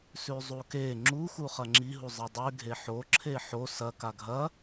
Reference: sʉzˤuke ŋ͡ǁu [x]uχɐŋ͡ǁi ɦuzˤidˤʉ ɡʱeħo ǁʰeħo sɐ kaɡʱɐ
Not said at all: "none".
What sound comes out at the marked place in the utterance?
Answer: x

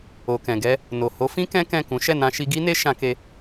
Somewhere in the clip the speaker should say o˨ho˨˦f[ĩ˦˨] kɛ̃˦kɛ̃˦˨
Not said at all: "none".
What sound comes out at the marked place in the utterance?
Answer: ĩ˦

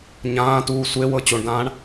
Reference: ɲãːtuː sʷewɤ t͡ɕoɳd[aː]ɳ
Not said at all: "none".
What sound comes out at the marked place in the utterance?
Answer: ãː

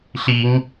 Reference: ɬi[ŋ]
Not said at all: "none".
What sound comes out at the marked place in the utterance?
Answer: ŋ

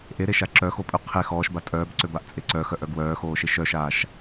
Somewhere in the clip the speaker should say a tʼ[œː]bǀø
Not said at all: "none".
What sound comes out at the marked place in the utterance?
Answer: œː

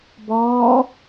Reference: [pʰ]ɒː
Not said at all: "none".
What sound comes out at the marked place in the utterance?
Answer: b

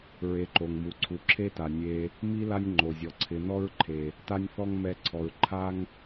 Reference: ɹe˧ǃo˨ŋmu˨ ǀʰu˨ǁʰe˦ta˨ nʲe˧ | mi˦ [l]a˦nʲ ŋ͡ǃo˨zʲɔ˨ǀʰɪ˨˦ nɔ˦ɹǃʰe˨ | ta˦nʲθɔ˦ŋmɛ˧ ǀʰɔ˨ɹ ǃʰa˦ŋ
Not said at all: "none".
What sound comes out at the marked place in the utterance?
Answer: l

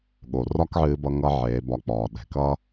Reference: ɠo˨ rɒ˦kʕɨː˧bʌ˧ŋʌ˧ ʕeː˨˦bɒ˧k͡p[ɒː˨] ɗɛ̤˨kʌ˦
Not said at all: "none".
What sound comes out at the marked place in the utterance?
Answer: ɒː˨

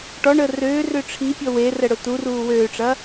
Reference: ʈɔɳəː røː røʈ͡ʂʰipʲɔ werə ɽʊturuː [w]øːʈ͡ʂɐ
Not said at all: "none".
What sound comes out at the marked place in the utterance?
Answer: w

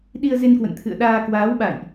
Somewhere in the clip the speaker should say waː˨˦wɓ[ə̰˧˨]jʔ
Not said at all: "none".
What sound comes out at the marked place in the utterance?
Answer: a̰˧˨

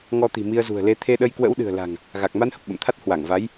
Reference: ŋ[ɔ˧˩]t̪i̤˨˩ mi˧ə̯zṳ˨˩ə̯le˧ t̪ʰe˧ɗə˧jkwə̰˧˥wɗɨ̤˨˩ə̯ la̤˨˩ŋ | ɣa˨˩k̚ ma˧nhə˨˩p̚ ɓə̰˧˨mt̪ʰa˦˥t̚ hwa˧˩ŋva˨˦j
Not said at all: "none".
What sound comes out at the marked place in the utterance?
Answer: ɔ˧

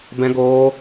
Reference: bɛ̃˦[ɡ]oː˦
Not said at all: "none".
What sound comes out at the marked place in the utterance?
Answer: ɡ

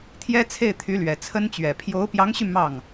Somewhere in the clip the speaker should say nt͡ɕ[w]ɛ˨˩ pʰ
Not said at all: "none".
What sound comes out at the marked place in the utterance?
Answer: ɥ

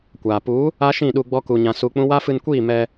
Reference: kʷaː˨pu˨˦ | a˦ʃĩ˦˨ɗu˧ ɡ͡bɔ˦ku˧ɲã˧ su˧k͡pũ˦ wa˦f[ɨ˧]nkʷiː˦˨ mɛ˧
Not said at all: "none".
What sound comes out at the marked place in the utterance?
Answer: ɨ˧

